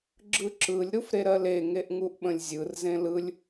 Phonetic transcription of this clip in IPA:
ɡ͡ǁ ɯ ǁ ɯ lʲ ɾ u f ɾ e ɾ ɜ l e ŋ e ʔ ŋ u ʔ ɓ ə̃ lʲ zʲ ɯ r z ẽ l ɯ lʲ

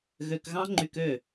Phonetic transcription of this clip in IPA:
ɣ ø˧ k ɣ ɑ̃˦ ŋ͡ǃ y˧ k ø˦˨

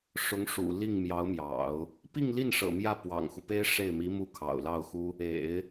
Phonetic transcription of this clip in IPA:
ʂ ʊ˧˥ ŋ ʂ ṵ˨˩ l i˥˩ ŋ m j ɑ˧˥ ʊ̯ m j ɑ̰˨˩˦ ʊ̯ | p i˥˧ ŋ l i˥˩ n ʂ ɤ̰˨˩ m j ä˥˩ p w ɑ̰˨˩ ŋ x u˦ p e˥ ɪ̯ ʂ e˥˩ ɪ̯ m i˧˥ m u˥˩ kʰ ɑ̰˨˩ ʊ̯ l ɑ˥˩ ʊ̯ x u˥ | ḛ˨˩˦ ɪ̯

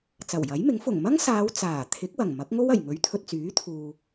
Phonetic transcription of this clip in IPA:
t͡s ɐ˨˩ w j ɐ˨˥ j m ɪ˨˥ ŋ f ʊ˨˩ ŋ m ɐ˥ ŋ s aː˨˧ w t͡s aː˨˩ t̪ʰ ɪ˨˥ k̚ w ɐ˨˩ ŋ m ɐ˨˥ k̚ ŋ o˥ w ɐ˨˩ j ŋ ɵ˨˥ ɥ t̪ʰ ɵ˨ t̚ t͡s yː˨˥ t̪ʰ uː˨

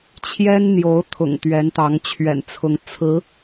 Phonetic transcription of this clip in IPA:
t͡ɕʰ j ɛ˥ n n̪ j o˧˥ ʊ̯ t̪ʰ ʊ̰˨˩ ŋ t̪ ɥ ɛ˧˥ n t̪ ɑ˧˥ ŋ t͡ɕʰ ɥ ɛ̰˨˩ n t͡sʰ ʊ˧˥ ŋ t͡sʰ ɹ̩˧˥

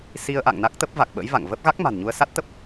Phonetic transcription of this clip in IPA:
s i˧ ə̯ ʔ a̰˧˨ ŋ n a˦˥ k̚ t̪ ə˦˥ p̚ v a˨˩ k̚ ɓ ə̰˧˥ j v a̰˧˨ ŋ v ə˦˥ p̚ ɣ a˦˥ k̚ m a̤˨˩ n ɲ u˧ ə̯ s a˦˥ t̚ t̪ ə˦˥ p̚

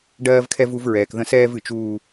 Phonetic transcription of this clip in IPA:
ɖ ɜː˦ v kʰ ɛ˦ v u˦ v ɹ ɛː˨ k ð ə̃˦ s ɛː˦ v ɨ˨ t͡ʃ uː˦

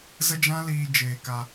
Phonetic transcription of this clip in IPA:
z ə˦ d͡ʒ ã˦ l iː˧ d͡ʒ eː˧ k a˧

